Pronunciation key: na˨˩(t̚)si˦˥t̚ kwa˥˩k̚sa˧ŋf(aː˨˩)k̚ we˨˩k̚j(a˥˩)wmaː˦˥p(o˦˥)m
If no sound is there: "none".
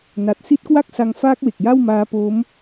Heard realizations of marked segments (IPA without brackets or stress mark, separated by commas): t̚, aː˦˥, a˥˩, o˦˥